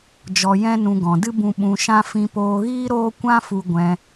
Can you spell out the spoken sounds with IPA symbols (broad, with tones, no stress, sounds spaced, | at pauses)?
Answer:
d͡ʒ ɔ˧ j ɛ̃˦ n ũ˧ ɡ ɔ̃˨ d ɨ˦ b ũ˧ ɓ ũ˧ ʃ ã˦ f ĩ˧ p oː˧ ɣ iː˦ ɾ oː˦ kʷ ã˦ f u˧ ɡʷ ɛ̃˧